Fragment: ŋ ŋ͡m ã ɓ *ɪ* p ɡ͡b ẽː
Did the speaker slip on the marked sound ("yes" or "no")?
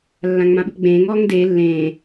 no